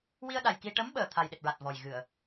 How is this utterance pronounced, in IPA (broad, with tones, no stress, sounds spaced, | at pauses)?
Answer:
w i˧ ə̯ ɗ a˨˩ j k i˧ ʈ ə˧˥ m ɓ əː˨˩ t̪ʰ a˨˩ j ɗ e˨˩ t̚ ɹ a˨˩ t̚ v ɔ˨˩ j ɣ ɨ˨˩˨ ə̯